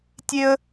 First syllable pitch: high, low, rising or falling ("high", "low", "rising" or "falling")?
high